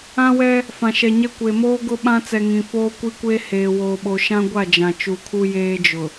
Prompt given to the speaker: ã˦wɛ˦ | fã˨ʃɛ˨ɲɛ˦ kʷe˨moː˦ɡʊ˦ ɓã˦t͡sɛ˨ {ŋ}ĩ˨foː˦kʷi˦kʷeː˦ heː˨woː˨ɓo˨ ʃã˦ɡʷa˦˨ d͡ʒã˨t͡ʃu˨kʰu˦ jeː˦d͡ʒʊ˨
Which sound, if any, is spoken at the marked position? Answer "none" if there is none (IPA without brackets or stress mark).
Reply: ŋ